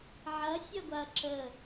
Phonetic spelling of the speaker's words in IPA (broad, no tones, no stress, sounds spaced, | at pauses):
ʕ ɐ sʲ ɐ ɡʷ a ɐ̯ ǁ ə